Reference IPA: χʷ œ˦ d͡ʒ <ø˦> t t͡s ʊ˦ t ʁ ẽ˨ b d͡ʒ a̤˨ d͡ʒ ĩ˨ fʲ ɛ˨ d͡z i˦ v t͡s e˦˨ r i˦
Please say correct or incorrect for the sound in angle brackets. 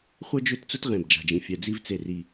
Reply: correct